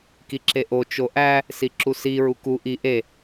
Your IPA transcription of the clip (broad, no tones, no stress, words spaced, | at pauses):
kiǁeʔo t͡ʃoʔæ | siǁusi ɹuku ʔi ʔe